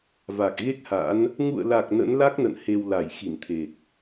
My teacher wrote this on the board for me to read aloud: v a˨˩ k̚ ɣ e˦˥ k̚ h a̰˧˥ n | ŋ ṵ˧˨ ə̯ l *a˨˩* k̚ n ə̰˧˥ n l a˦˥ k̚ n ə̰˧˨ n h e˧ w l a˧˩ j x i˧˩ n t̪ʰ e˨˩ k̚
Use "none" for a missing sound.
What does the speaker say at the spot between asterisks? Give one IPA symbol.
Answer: a˨˩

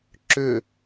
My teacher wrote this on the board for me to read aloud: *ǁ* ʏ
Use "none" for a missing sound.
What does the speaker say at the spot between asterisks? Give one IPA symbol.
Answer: ǁ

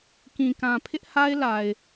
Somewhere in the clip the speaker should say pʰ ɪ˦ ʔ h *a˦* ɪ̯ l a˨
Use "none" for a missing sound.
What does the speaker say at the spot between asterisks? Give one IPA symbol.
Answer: a˦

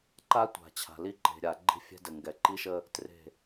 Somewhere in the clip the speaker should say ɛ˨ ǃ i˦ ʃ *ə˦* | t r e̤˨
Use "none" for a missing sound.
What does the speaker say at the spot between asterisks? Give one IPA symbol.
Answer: ə˦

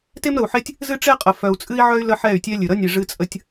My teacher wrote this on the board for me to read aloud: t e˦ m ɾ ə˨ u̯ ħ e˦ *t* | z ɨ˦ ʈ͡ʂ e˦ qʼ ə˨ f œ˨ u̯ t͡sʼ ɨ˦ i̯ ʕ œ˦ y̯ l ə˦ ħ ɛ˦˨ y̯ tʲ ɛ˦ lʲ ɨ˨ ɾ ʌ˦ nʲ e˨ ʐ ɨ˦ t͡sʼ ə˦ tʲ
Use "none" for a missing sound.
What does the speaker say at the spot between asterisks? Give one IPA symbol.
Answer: tʲ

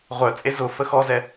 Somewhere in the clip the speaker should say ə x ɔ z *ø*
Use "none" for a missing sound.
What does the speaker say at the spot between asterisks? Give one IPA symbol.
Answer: ɛ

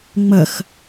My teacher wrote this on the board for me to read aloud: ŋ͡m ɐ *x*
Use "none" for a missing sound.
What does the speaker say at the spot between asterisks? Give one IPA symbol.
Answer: x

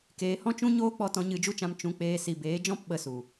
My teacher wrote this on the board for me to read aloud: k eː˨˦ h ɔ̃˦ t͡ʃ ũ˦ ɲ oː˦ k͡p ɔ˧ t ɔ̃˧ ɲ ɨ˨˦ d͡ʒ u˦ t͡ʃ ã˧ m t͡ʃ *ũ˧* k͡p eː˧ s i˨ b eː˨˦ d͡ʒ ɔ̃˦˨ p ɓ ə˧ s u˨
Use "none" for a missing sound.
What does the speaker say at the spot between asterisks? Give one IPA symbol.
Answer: ũ˧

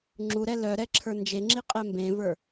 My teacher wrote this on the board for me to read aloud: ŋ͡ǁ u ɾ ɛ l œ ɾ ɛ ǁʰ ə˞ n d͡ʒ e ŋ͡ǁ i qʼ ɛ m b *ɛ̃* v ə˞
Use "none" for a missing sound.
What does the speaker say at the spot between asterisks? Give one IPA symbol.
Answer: ẽ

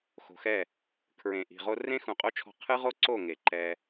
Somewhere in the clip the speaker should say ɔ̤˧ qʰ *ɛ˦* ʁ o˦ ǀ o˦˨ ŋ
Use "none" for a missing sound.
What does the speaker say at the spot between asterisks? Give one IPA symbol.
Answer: ɨ˦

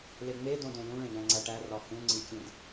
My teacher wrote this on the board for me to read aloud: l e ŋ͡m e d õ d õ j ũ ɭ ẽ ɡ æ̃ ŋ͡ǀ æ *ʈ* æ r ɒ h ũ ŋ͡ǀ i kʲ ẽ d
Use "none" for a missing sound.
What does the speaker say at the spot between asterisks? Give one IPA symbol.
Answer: ʈ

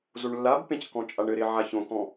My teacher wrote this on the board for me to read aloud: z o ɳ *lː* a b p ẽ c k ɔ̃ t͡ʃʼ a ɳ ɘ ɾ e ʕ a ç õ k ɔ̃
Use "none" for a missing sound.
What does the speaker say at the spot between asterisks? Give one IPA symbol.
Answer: lː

